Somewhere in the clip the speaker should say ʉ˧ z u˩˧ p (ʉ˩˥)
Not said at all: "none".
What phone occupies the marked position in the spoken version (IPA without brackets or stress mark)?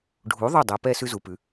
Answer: ʉ˩˧